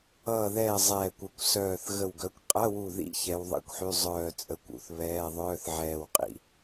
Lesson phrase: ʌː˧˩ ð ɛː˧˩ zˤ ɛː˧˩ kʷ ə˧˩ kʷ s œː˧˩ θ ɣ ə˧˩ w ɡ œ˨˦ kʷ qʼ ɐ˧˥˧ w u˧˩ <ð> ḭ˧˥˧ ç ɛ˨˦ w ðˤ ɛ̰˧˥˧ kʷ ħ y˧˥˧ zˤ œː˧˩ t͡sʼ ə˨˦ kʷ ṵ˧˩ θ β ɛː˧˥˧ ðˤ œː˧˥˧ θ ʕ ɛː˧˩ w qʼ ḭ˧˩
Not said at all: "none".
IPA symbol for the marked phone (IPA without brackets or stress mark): ð